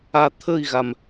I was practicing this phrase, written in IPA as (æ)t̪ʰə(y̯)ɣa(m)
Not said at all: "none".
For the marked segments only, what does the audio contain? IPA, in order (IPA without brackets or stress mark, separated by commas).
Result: a, i̯, m